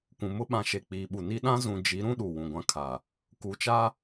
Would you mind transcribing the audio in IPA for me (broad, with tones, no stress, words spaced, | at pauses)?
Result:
kʷũ˨mʊ˦ ɓã˨ʃe˨ k͡piː˨ ɓu˨ni˦ ɗã˦zũ˨ d͡ʒi˨˦ɾũ˦ ɗu˨wũ˨ɡʷã˦ kʰa˨ | ku˨t͡ʃa˦